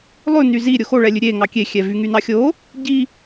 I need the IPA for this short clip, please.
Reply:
lˠ ʉ n y z i ɾʲ o x o ɭ ɛ lʲ ʉ ɾʲ e ŋ ɑ kʲ e xʲ ɛ v y ŋ y n ɑ xʲ o | ɟ i

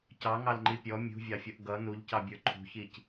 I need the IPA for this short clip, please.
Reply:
c ɑ ŋ ɑ l ŋ͡ǃ i pʲ ɔ mʲ ṳ vʲ ɑ fʲ ʌ ʔ ɡ ʌ n u ʎ c ɑ bʲ ə˞ ǃʰ ṳ ç i c

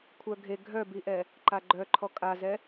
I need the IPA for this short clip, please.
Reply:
kʷʰ œ ɡʱ e ɡʱ œ b i ʔ ɛ | ǃ a ɡ͡ǃ œ ǃʰ ɔ kʼ a z ɛ

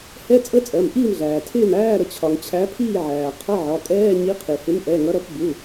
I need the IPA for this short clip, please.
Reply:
h ɛ˧˥˧ t͡sʼ ə˧˥˧ t͡sʼ ɜ˩˧˩ m ʔ iː˥˨ m ɮ æː˩ tʰ ɪː˥˨ m æː˧˥˧ ɾ ə˩˧˩ t͡ɕʰ ɒ˩ ŋ t͡ɕʰ æ˨˥ pʰ iː˥˨ ʕ æː˩ qʰ ʌ˧˥˧ ʕ ɒ˩˧˩ kʼ ɛː˧˥˧ ɲ i˨˥ qʰ i˩ h ɪ˨˥ m ʔ ɛ˩˧˩ ŋ ʌ˨˥ ɾ ʌ˨˥ p b u˩˧˩

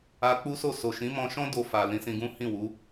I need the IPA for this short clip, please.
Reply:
a˧ k͡p u˦ s o˦˨ s o˨ ʃ ĩ˨˦ m ɔ̃˧ ʃ ɔ̃˦ d o˧ f a˨ l ĩ˨˦ s ĩ˧ ɡ ũ˦ h ĩ˦˨ w u˨˦

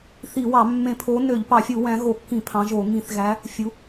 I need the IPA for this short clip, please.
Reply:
θ i˧˩˧ w ɑ˧˩˧ mː ẽ˧˩˧ pʰ o˨˦ n ø˧˩˧ ʎ p ɑ˧˩˧ fʲ u˧˩˧ w æ̃˨˦ ɣ o˧˩˧ kː ĩ˧˩˧ pʰ ɑ̃˨˦ ʒ o˧˩˧ ŋ ĩ˧˩˧ θ ɣ æ˨˦ | fʲ u˨˦

